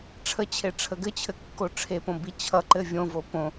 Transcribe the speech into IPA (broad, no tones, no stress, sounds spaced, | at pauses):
ʈ͡ʂʰ ə t͡ɕʰ e ʈ͡ʂʰ ə ɡ ɘ t͡ɕʰ ɘ kː o ʈ͡ʂʰ e p õ b i t͡ɕʰ ʌ ǃ ɘ vʲ õ v o p õ